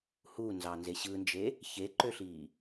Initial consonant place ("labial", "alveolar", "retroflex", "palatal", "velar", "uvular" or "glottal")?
glottal